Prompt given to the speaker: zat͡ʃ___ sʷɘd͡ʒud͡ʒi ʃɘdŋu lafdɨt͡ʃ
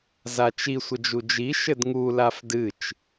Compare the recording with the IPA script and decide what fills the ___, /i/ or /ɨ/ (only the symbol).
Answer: i